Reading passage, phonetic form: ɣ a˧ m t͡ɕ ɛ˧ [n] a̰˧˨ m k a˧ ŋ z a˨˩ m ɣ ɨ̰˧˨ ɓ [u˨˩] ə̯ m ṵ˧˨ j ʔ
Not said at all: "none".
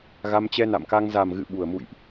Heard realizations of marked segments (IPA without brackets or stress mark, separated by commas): n, u˨˩